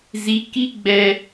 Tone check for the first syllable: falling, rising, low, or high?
rising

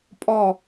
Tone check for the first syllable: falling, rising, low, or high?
falling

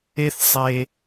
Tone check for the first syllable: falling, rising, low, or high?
high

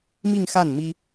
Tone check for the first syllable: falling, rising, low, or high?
falling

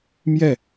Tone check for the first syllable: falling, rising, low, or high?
falling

